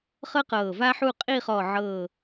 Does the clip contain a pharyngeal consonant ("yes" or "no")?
yes